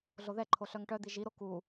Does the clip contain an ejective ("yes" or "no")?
no